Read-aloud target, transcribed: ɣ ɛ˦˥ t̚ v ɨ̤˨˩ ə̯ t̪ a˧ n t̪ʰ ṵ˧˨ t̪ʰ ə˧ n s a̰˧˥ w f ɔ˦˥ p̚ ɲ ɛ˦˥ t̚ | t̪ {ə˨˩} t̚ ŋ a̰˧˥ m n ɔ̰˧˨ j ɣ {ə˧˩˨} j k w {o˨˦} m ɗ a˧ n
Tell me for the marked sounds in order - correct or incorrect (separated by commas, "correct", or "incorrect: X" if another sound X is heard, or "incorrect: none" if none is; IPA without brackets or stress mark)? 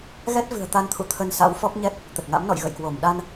correct, incorrect: ə̰˧˨, incorrect: o˧˩